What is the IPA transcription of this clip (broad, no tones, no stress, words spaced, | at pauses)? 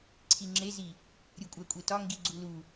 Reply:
ǀʰiŋ͡ǁezi | ɾʲukʷʼækʷʼetɒ ŋɡiɡ͡ǀulu